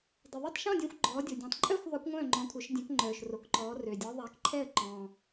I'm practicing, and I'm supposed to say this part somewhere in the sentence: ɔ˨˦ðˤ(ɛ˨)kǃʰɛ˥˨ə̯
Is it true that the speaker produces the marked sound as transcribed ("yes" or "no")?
no